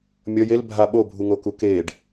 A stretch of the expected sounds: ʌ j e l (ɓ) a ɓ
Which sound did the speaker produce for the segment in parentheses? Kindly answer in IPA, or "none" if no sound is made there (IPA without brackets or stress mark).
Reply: bʱ